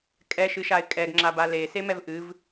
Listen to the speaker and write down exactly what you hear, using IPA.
kʼ ɛ ʃ ɨ ʃ a ɪ̯ kʼ ɛ ɡ ŋ͡ǁ a b a l e s e m ɛ v ʔ ɨ v

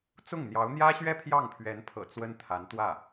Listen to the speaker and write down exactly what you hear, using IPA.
t͡s ʊ˥˩ ŋ n̪ j ɑ˧˥ ʊ̯ n̪ j ä˥ ɕ ɥ ɛ˥˧ pʰ j ɑ˥˩ ŋ pʰ ɥ ɛ˧˥ n pʰ ɤ̰˨˩ t͡s w ə˥ n t̪ʰ a˧˥ n t̪ w ä˥˩

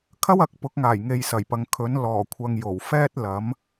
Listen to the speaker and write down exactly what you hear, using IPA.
kʰ ɐ˥ w ɐ˨˥ k̚ p ʊ˨˥ k̚ ŋ aː˨˩ j ŋ e˨ j s ɐ˨˩ j p ɐ˨ ŋ kʰ ɵ˨˥ n l ɔː˨˩ kʷʰ ɐ˨ ŋ j o˨˩ w f ɛː˥ t̚ l ɐ˨˥ m

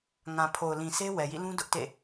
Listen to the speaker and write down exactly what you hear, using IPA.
ŋ ã˨ pʰ o˨ ʊ̯ l ĩ˨ sʰ e˦ w ɛ˨ j ḭ˦˨ l ũ˦ d ʊ˦ ʔ t ḛ˦˨

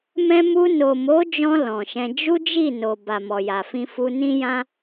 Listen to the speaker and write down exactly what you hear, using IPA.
m ɛ̃˧ m u˧ n o˨ m o˨˦ d͡ʒ ɔ̃˧ l ɔ̃˨ ʃ ɛ̃˧ d͡ʒ u˦ d͡ʒ i˦˨ n o˨ b a˨ m ɔ˨ j a˨ f ĩ˧ f u˧ n ĩ˦ j ã˦

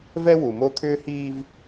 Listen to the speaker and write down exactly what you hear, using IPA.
v ɛ˦ w u˨ m o˦ t̪ʰ ʏː˦ h iː˦ v

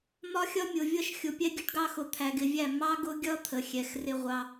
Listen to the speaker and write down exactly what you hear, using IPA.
m ɒ˦ xʲ ʌ˦ mʲ ʊ˨ vʲ ʌ˦˨ ʃ xʲ ʊ˨ pʲ ɛ˦ ɡʲ ə˦ ʈ ɡ ɑ˦ x ʊ˨ t̪ʰ æ˨ ɡ ɪ˨ vʲ æ˦˨ m ɑ˦ ɡ ʊ˦ ɡʲ ʌ˦ t̪ʰ ə˨ xʲ ɛ˨ x r ɪ˦ ʁʷ ɑ˦

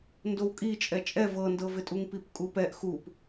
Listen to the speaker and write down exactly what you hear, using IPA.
n d o w kʼ i t͡ʃʼ ɛ t͡ʃʼ ɛ v ɤ n d ɤ v ɪ tʼ u ŋ p i p kʼ u p ɛ ʔ x u p

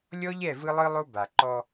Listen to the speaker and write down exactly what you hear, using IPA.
lʲ ɔ˦ ʎ ɛ˦˨ v ɯ˦ lˠ ɯ˦ lˠ o˦ b a˨ ǃ ɔ˦

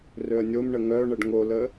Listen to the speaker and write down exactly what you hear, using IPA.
r ø ə̯ nʲ o m ɳ ə ŋ œ ɳ ə ɖ ŋ o l ə

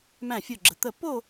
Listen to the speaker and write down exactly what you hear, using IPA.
m æ̃˧˩ fʲ o˧˩ ɡ͡ǁ ə˩ t̪ ə˧˩ p o˥˧

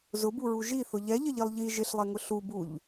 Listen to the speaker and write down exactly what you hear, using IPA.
z ʊ b u ɹ u ʒ i θ ʊ ʎ ɛ ʎ ə ʎ i lˠ ʎ i ʒ ɪ ɬ lˠ ɛ ŋ ʊ ɬ u b u ʎ

